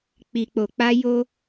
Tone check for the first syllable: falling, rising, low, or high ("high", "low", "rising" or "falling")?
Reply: low